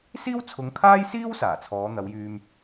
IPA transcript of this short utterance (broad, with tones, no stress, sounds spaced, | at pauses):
s iː˥ w t͡sʰ ʊ˨˧ ŋ kʰ aː˥ j s iː˥ w s aː˨˩ t͡sʰ ɔː˨˧ n̪ ɐ˨˧ w j yː˧ m